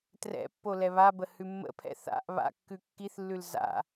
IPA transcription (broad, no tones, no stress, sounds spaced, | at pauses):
t r ɛ̰ pː o l ɛ β a b ə h ʉ mː ə̰ pʰ ɛ̰ θ a̰ ʔ β a̰ kː ʉ kː i θ lː ʉ l z a̰